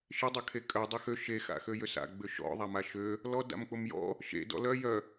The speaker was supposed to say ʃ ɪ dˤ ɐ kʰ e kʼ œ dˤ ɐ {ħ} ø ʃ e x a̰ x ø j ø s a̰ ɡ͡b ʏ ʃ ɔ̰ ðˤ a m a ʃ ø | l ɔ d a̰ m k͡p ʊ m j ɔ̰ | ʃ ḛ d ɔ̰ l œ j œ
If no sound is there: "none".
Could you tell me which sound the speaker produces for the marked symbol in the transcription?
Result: x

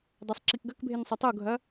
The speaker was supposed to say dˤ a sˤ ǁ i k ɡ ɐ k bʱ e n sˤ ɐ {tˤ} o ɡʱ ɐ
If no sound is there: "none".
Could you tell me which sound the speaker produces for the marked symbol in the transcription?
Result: tˤ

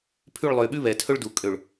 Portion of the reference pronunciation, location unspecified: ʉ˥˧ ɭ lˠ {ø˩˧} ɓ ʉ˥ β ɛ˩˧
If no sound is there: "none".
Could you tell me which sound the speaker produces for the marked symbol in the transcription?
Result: ø˧˩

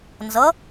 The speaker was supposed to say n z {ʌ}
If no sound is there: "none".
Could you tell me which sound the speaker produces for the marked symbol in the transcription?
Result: ʌ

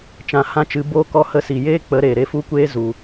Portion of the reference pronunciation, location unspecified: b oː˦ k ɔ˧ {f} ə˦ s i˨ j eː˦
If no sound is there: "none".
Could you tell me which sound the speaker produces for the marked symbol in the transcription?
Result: h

